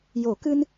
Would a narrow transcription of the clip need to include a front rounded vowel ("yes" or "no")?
no